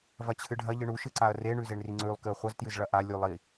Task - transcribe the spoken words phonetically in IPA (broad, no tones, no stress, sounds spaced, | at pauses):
v ɐ t͡ɕʰ ɨ ɖʱ ɐ ʎ ɨ ɳ u ʃ ɨ ǀ a ɐ̯ r e ɳ ʉ z e ɳ r i ŋ͡ǀ ʉ lˠ k ɨ ɐ̯ χʷ ɐ z t j ɨ z ɭ ɐ ʔ a lʲ u lˠ i